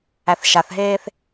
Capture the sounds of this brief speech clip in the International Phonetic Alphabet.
æθʃaθɦeːθ

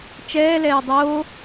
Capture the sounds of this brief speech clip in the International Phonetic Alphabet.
t͡ʃɛːlɛːj dˤoː

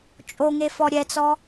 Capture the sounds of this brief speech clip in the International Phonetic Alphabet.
t͡ʃʼoŋefɔ ɾʲɛt͡sɔ

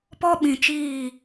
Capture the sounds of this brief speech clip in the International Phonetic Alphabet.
pɔ˦ɓĩ˨ t͡ʃiː˦˨

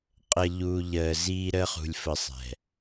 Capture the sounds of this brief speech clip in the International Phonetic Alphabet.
qʼə˨ ʎu˨ ʎəː˨ziː˦ɾəː˦χ ṳ˨lʲfə˨ sˤɛ̤˨

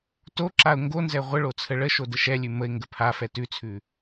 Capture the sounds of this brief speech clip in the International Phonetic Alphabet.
toǁaʊ̯ ŋɡonzɛ ʁʷəɭo t͡sʰəɭəʃo dəʃɛlʲʉ məɪ̯ ŋɡəpʰafɛ tʉt͡sʰʉ

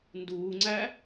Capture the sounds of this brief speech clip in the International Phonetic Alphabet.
nduːŋ͡ǀæ

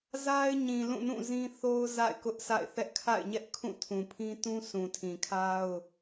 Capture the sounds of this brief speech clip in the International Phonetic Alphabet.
za˦ɪ̯ɲĩ˨ lũ˦˨nũ˦˨zĩ˦θo˦ʊ̯ za̰˦˨ɪ̯kʊ˦ʔsʰa̰˦˨ɪ̯θɛ˦ʔ kʰa̰˦˨ɪ̯ɲɛ˦ʔkʰũ˦˨ tʰũ˨pʰĩ˦ tũ˦sʰũ˨tʰĩ˨kʰa˦ʊ̯

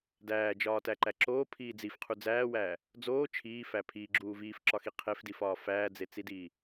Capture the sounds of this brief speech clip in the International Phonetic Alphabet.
dæːd͡ʒɒːtæǃæ ǁoːpʰiː d͡zifqʰu d͡zæːwæː | d͡zoː t͡ʃʰiːfæ pʰiɡ͡ǁuː viːfǁɒxi qʰefdifɒː fæːd͡zet͡sidiː

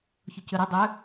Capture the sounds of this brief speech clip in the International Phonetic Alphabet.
çʊcʏɾə dˤø

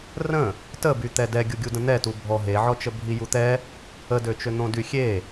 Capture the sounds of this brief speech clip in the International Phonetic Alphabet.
rə̃ | təbyt̪ɛ dɛɡʲuɡʲudə̃ n̪ɛtu bʱɔ ɦeʕɔt͡ʃə bʱijut̪ɛ | ədøt͡ʃø n̪õdyxʲe

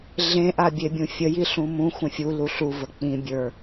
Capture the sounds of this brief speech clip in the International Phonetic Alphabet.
ɮẽ ʔabʲebʲũfʲə jiɬũmũ xʷə̃fʲu luɬu vək͡pĩ bʲə˞

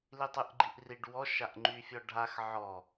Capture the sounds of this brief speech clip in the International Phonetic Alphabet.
litˤyʔɡ͡ǃiʔriɖ wɔ ʃaʔŋ͡ǃyfʲɔɖʱax ʕɔ

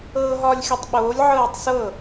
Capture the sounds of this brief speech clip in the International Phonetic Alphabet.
ɤːɦɒːlʲxʲɔtˤɓoːlʲ ʕɤːtˤsɤ

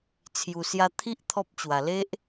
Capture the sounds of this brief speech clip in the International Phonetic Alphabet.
t͡sʰju˨˩sja˧ t̪ʰi˦ʔ t̪ʰɔ˦p̚t͡ɕwa˨˩ le˦ʔ

